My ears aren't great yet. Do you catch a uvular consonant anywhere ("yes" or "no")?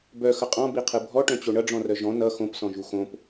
yes